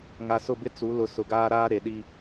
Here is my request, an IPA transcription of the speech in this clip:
ŋa˨sʊ˦˨bɪ˦ t͡su˨˦lʊ˨˦ sʊ˨ɡaː˦ɾaː˦ ɾe˨ɗi˦

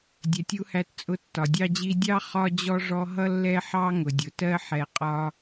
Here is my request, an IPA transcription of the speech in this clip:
dʲɛ˨tʲu˧hæ˧tt͡sʼʊ˧ tːɒ˨dʲɑ˦d͡ʑi˦ dʲɑ˦ χɒ˦d͡ʑɔ˦ʐɔ˦ ɦʌ˦ lːɛ˦ħɑ˦ ŋʊ˨dʲʊ˨tɜ˦ ħɛ˧qʼɒ˦

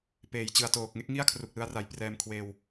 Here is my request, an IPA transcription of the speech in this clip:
peː˩˦jt͡ɕɯ˨˩a̯toː˨˩k̚ŋe˥˩k̚ ŋi˥˩a̯kʰru˨˩k̚lɯ˧a̯ra˨˩j prɛː˧mkʰweː˧w

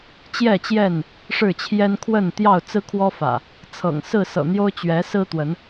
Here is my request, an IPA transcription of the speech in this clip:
t͡ɕjɛ˥˨t͡ɕjɛ˥˨n | ʂɻ̩˥˨t͡ɕʰjɛ˦n kʰwə˥˨n t̪jɑ˥˨ʊ̯t͡sɹ̩˦kʰwɔ˦fä̰˨˩ | t͡sʰɤ̰˨˩ŋ sɹ̩˥˨sɤ̰˨˩n̪jo˦ʊ̯ t͡ɕɥɛ˨˦sɹ̩˦t̪wə˨˦n

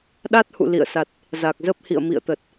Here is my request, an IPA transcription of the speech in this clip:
ɗa˦˥t̚hṵ˧˨ lḭ˧˨ə̯sa˨˩t̚ | za˨˩k̚zə˦˥p̚ hḭ˧˨ə̯mḭ˧˨ə̯t̪ə˨˩t̚

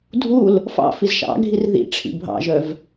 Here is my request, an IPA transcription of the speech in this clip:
dʱul | fɑ̰fiz ʃɑ̰ɡʱir ðḭʈ͡ʂʰḭ bʱɑ̰ʒœv

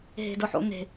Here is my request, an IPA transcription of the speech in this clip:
ɦe̤dʊħo̰n̪e̤

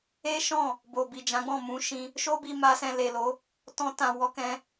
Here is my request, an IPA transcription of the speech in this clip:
e˦ʃɔ̃˦˨ | bo˨bi˨d͡ʒã˨˦ɡ͡bɔ̃˦˨ mũ˨˦ʃĩ˧ | ʃo˦bi˧ma˧ sɛ̃˧le˨lo˨˦ | tɔ̃˧tã˨ wɔ˨˦kɛ̃˧

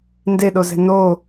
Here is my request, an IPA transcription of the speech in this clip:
ndeɗozɛ̤ no

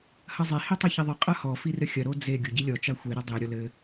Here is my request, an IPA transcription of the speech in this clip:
hɐzˤe hitˤɨçiðˤɨ qʼɐhɔ firɘxʲɐ ɾod͡ze ɡʲoɟilʲɔ t͡ʃaxʷe ɾɨdˤe ɾʲɔlɘ

